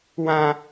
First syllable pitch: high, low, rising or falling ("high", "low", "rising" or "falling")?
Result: high